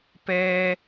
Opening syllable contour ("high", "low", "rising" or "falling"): high